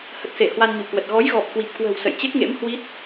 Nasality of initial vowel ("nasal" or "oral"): oral